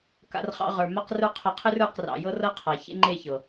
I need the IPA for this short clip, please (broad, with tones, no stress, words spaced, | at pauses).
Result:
ka̰˧rχɑ̰˧ ʁə˞˨ ma˦qrə˞˦ qʰɤ˧qʰɨ˦r ə˞˦˨qrɑ̰˨jɤ˦ rɤ˦qʰa˨ çḛ˦ŋ͡ǃe˦˨çɤ˨